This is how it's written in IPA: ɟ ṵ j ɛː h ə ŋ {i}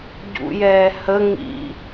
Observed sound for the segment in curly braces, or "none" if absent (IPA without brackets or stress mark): ḭ